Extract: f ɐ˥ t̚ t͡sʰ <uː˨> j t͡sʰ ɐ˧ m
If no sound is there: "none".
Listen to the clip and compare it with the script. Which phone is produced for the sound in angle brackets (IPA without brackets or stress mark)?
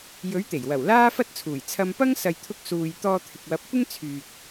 uː˨˩